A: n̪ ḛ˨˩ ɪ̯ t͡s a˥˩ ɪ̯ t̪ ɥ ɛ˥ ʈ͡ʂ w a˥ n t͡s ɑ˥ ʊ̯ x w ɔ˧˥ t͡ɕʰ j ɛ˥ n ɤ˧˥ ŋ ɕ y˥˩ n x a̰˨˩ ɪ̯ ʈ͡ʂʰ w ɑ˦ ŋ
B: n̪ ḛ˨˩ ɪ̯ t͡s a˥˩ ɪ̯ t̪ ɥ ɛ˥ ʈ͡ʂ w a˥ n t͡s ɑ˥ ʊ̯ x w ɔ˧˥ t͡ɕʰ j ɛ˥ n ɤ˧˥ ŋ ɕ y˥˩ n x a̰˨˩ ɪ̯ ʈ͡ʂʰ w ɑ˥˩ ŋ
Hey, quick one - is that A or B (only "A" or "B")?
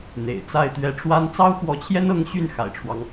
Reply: A